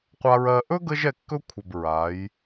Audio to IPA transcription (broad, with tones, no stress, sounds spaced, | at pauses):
qʷ a˧ ɹ ɜ˧ ʔ ɵ˦ ɡ ə˦ ʒ ɛ˧ kː ɵ˦ kʷʰ ə˨ b ɹ a˨˦ j